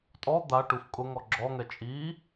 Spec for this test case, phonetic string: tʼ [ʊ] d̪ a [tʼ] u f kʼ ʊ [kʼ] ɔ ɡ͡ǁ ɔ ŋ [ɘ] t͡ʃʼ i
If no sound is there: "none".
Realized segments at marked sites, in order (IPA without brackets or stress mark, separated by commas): ɔ, ʈ, ŋ, ɛ